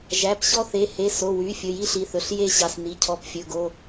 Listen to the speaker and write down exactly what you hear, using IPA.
ʒ æ˩˧˩ p ɕ ɔ˦ θ e˩˧˩ h e˩˧˩ s o˩˧˩ w y˩˧˩ fʲ ɵ˩˧˩ j i˦ ɬ i˩˧˩ θ ɵ˩˧˩ ɬ j e˦ ɕ ɑ˩˧˩ s n i˩˧˩ cʰ ɔ˩˧˩ p fʲ ɵ˩˧˩ ɡ o˩˧˩

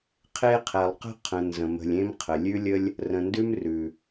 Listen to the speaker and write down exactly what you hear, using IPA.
qʰ e˦ qʰ ɛ˨ lˠ q ə̤˥ qʰ ə̃˨ n z ə̃˩ m ə̤˨ lʲ ẽ˦ m qʰ ə˩ lʲ ʉ˦ lʲ ə˦ lʲ | r ə̃˨ n d ʉ˥ m r ʉ˩

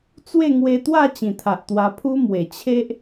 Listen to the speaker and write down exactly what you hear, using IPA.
t͡s w e˥˧ ŋ w e˧ t̪ w a˥˧ t͡ɕ ĩ˨˩ t̪ʰ a˨ ʔ t̪ w a˧ pʰ u˦ m w e˨˩ t͡ɕʰ e˦ ʔ

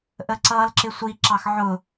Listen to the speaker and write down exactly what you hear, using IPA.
ʔ ə ǀ ʌː l ǁ ɪ sʷ i ǁ ɑ x ʕ ʊ

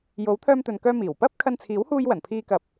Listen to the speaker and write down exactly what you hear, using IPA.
j o˨˥ w t̪ʰ œː˧ m t̪ ɵ˨ n k œː˧ m iː˨˩ w p ɐ˥ p̚ kʰ ɐ˧ n t͡sʰ iː˨˥ w h uː˧ j w ɐ˨˩ n pʰ iː˧ k ɐ˨ p̚

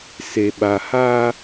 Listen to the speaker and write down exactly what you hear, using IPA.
s e˨ ɓ a˨ h aː˦

